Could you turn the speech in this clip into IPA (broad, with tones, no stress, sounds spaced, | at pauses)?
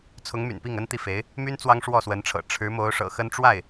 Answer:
t͡sʰ ʊ˧˥ ŋ m y̰˨˩ n p i˥˩ ŋ ə˥ n t̪ i˨ f e˧˥ ɪ̯ | m y˥ n t͡s w ɑ˥ ŋ ʂ w ɔ˥˩ s w ə˧˥ n ʈ͡ʂʰ ɤ̰˨˩ ʈ͡ʂʰ ɻ̩˧˥ m o˧˥ ʊ̯ ʂ ɤ̰˨˩ x ə˥ n ʈ͡ʂ w a˥˩ ɪ̯